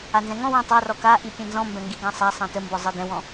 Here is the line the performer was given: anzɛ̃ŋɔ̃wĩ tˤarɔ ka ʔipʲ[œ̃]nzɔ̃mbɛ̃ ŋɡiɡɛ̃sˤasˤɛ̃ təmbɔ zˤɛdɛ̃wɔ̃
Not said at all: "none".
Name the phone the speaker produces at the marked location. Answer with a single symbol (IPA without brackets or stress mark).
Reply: ɛ̃